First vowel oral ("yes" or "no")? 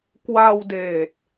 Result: yes